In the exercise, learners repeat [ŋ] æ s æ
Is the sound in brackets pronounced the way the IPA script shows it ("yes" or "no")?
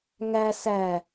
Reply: yes